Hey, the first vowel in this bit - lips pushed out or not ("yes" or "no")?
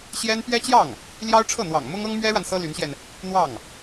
no